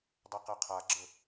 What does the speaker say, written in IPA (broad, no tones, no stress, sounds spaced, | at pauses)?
dˤ e q e qʰ a ɡ͡ǁ ə